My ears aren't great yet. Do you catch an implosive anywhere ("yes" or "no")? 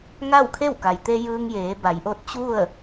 no